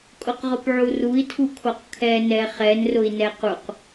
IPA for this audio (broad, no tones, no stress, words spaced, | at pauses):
kʼʊqʁʊpʕurui̯ tʰukʰoqkʰɛ nɛχɛn rʊi̯nɛquq